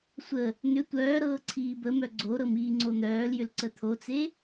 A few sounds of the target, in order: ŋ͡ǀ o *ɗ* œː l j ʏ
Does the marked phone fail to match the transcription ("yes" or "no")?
yes